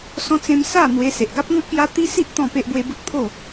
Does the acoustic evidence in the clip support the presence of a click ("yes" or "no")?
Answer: no